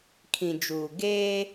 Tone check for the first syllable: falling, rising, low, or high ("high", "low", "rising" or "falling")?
low